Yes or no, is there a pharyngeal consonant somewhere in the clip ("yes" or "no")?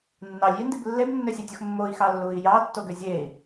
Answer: no